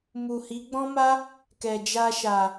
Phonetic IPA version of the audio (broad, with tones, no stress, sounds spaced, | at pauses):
m u˨ h i˨˦ ɡ͡b ɔ̃˦ m a˦ | k ɛ˨ d͡ʒ a˧ ʃ a˨